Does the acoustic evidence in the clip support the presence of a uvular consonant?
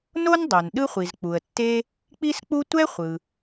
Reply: yes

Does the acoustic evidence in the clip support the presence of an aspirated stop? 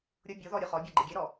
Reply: no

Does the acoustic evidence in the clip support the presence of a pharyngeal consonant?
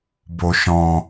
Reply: no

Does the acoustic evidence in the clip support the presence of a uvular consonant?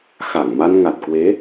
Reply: no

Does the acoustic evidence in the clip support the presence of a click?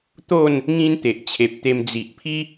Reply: no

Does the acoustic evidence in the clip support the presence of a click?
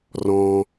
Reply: no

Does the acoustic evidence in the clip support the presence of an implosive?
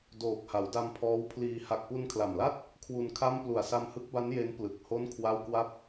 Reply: no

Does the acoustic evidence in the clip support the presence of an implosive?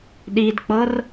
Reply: yes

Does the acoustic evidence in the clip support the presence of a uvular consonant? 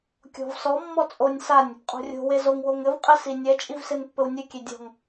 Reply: yes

